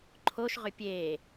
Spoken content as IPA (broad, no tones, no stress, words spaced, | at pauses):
ǃʰoʃʁʏ pʲeː